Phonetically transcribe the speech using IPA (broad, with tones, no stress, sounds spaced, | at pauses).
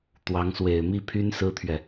t̪ w ɑ˧˥ ŋ s w e˨˩ ɪ̯ m i˥˩ pʰ y˥ n s ɹ̩˥ t̪ʰ ɥ ɛ˨